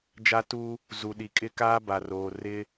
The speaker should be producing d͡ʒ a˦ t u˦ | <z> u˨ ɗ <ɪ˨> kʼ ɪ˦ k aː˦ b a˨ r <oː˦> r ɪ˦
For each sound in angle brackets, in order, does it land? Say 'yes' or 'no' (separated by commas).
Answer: yes, no, no